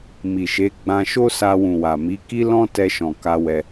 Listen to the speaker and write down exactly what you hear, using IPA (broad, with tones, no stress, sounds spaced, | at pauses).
m i˨ ʃ e˨˦ ɡ͡b ã˧ ʃ o˦ s a˧ w ũ˨ w a˨ m i˨˦ k i˦ l ɔ̃˦ t ɛ˧ ʃ ɔ̃˨ k a˧ w ɛ˧